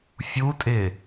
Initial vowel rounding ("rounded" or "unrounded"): rounded